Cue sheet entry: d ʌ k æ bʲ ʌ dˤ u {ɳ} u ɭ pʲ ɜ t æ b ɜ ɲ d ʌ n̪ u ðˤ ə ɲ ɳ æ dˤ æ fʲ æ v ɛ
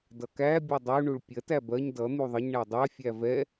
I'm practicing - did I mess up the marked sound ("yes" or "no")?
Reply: no